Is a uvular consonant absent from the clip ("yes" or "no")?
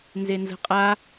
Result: no